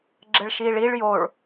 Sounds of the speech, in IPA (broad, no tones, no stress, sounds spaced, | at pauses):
ɡ͡ǁ ɘ ɭ ʃ iː ɭ i ɭ j o ɭ